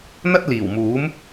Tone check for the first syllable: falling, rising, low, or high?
high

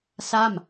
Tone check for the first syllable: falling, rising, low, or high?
falling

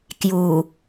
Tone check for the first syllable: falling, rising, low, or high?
low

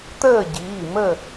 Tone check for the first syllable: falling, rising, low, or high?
falling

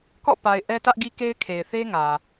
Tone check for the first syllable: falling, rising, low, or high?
falling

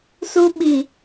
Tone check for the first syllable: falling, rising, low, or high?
high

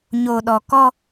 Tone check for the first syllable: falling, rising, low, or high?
low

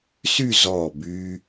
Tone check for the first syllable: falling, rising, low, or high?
falling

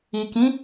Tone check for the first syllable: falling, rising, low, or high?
low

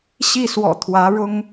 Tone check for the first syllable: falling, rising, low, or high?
falling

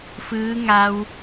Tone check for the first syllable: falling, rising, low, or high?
rising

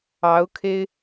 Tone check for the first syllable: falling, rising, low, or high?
rising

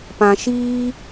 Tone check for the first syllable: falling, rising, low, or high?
low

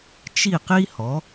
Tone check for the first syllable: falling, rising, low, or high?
falling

